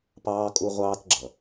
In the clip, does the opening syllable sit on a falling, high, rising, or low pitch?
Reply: high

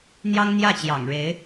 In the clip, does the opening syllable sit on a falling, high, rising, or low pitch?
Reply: high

